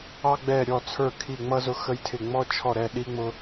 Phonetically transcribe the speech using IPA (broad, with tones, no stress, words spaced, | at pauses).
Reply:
ɑ˥ɡ͡bɛ˥˧ ɾʲɔ˥˧t͡sʰə˞˥˧ kʰi˥˧ŋ͡mʌ˥ zʊ˥xə˥jtʰɪ˥˧ ŋ͡mɔ˥t͡ʃʰɔ˥˧ɾɛ˥˧ ɗi˥ŋ͡mʊ˥